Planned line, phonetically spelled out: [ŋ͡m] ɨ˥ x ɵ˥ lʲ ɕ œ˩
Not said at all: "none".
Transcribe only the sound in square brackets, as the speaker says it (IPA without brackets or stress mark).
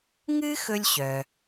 ŋ